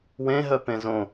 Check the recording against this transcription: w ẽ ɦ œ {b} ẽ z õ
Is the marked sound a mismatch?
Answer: yes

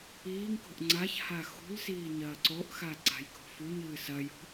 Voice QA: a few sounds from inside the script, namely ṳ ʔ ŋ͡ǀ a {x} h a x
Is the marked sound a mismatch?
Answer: yes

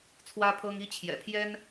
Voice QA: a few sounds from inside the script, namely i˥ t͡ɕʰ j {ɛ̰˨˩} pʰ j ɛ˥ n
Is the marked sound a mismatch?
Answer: no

